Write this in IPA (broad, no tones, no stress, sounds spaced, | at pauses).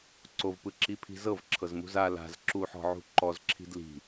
ǀ o v p ɯ ǁ i pʰ i̤ z ɤ v ǁʰ ɤ z m ṳ z a l a̤ z ǁ u ħ ɔ̤ ʕ ṳ ǃ ɔ z ǁʰ i̤ d l i̤